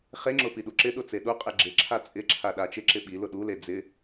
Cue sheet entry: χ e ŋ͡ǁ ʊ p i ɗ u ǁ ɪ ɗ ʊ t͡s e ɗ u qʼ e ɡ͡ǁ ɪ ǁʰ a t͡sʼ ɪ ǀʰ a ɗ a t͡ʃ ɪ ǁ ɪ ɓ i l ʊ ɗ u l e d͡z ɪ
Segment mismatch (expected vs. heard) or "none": ǀʰ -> ǁʰ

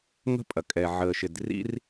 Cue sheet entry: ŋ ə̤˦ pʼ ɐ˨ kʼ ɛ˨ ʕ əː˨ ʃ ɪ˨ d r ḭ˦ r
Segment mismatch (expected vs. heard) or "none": none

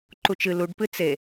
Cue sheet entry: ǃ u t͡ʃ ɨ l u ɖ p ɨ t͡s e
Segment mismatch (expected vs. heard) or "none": none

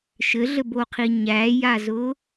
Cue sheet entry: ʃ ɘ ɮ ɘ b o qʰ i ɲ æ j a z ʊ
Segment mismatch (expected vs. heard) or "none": none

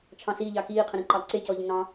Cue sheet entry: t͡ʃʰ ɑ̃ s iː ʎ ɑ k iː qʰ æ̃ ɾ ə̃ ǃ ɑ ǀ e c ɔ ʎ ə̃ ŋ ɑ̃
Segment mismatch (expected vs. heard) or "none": æ̃ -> ə̃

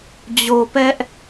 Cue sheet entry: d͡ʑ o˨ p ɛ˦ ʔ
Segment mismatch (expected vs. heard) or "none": none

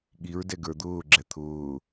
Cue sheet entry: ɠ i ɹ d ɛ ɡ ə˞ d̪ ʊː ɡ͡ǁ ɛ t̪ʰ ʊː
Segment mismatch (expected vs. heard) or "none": none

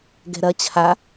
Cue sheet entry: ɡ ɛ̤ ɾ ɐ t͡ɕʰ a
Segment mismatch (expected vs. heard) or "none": none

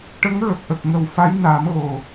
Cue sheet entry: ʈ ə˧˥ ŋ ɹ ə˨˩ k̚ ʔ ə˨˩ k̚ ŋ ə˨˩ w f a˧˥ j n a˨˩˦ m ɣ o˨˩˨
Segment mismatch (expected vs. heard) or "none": none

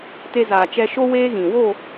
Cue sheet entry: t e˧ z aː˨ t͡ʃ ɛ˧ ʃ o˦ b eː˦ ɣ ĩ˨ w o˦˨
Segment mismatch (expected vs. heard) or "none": b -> w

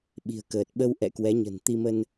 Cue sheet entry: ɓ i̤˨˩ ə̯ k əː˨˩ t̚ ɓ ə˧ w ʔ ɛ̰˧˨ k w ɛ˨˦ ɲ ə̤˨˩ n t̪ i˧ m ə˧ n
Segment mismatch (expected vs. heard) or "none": none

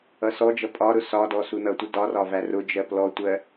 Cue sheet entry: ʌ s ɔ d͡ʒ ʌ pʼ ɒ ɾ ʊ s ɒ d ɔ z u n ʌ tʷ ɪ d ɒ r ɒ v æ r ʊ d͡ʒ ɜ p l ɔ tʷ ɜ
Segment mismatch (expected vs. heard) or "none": z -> s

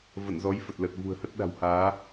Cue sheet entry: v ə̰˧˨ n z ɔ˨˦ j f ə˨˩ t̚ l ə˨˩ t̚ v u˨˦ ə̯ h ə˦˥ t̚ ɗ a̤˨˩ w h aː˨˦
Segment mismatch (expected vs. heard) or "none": u˨˦ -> ṳ˨˩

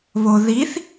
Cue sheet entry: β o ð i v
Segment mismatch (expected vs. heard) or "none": v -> θ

